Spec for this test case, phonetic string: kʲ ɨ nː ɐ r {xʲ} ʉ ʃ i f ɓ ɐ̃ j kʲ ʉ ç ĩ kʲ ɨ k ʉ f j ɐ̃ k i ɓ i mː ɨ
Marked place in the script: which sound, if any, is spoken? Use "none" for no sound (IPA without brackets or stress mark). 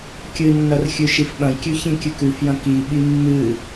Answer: xʲ